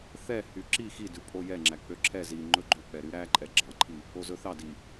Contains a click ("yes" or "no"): yes